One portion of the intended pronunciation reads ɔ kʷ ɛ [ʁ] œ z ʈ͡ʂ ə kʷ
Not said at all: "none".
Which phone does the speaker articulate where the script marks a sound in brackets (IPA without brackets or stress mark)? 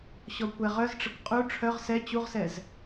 ʁ